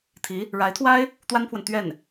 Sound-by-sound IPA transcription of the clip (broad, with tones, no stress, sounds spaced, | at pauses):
t̪ʰ i˧˥ | ɻ a˧˥ ɪ̯ t̪ʰ w a˥ ɪ̯ | t̪ w a˥ n pʰ w ə˨ n t̪ ɥ ɛ˥˩ n